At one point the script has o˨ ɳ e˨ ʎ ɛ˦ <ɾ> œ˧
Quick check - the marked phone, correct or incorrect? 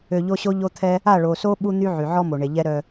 correct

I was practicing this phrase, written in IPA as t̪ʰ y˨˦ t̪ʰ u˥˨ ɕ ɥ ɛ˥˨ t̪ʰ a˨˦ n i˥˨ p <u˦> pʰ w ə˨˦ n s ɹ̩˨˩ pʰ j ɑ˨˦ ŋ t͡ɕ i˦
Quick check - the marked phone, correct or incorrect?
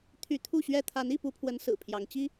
correct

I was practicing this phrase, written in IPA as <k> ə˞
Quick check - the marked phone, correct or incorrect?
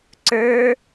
incorrect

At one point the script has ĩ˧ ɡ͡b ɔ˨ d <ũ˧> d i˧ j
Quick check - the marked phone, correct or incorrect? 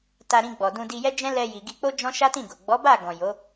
correct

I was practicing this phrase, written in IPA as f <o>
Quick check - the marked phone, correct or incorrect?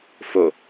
correct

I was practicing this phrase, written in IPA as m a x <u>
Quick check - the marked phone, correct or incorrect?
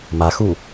correct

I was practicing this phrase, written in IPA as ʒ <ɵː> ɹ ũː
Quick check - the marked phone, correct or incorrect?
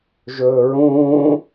correct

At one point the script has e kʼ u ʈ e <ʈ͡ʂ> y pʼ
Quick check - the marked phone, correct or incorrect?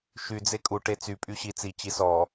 incorrect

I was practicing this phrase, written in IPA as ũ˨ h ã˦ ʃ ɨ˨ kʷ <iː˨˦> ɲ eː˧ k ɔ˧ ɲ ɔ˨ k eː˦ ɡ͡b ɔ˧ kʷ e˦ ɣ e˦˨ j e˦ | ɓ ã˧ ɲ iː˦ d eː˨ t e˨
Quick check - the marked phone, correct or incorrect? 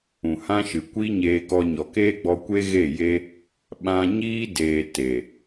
incorrect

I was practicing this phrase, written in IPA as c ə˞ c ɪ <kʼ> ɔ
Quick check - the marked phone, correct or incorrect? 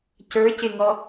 incorrect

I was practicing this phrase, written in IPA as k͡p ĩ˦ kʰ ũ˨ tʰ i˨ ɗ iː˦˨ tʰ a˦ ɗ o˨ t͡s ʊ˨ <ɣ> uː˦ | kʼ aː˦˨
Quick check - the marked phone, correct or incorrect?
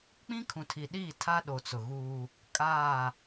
correct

